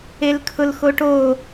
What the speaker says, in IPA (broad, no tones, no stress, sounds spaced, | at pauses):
e l kʰ ʊ l x o ʈ o